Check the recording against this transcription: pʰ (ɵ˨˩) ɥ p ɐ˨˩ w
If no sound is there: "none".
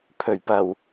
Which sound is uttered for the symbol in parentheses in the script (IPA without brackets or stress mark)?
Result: ɵ˨˩